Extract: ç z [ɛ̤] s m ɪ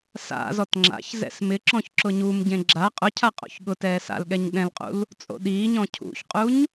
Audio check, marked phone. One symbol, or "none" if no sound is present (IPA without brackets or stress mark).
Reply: ɛ̰